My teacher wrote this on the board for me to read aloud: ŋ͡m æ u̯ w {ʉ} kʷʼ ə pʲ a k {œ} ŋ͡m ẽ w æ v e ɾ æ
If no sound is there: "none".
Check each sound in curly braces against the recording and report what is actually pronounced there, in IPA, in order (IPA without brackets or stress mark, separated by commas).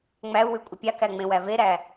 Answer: ʉ, æ